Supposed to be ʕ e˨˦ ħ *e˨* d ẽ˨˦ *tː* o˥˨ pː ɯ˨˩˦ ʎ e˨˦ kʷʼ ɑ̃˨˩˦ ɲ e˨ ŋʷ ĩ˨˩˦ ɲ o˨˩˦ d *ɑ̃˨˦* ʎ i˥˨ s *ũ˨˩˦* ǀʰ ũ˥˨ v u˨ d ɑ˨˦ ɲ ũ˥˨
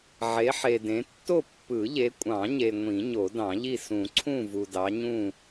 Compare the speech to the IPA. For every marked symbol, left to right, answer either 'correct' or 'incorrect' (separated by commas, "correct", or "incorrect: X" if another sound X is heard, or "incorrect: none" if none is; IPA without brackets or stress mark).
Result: correct, correct, incorrect: ɑ̃˨˩˦, correct